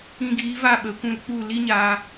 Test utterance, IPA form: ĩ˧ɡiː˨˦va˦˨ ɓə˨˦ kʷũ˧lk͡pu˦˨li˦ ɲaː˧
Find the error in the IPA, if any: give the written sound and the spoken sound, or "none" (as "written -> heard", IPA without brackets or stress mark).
none